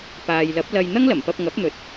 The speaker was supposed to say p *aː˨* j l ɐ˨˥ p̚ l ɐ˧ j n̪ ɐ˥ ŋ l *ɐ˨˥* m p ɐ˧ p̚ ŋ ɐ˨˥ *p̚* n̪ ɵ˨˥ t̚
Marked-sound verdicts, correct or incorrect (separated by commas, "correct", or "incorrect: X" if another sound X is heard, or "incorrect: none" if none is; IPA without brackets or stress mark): correct, incorrect: ɐ˨˩, correct